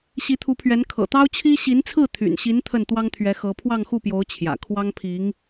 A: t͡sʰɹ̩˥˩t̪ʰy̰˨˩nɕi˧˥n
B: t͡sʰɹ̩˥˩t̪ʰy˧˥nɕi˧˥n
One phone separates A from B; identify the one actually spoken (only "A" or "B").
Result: A